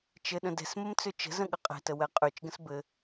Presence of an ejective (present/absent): present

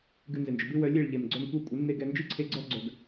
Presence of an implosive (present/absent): absent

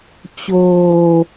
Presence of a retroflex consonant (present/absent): absent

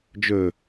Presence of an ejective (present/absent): absent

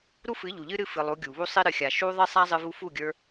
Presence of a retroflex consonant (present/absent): absent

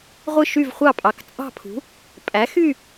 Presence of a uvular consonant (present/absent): present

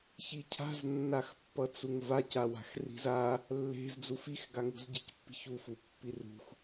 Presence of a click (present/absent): absent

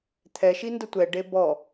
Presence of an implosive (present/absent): absent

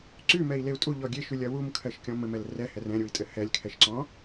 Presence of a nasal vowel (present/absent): present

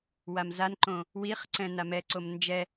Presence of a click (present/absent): present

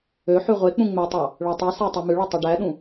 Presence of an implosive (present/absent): present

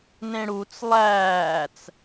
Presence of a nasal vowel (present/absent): present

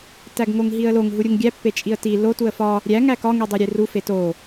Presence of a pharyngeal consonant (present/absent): absent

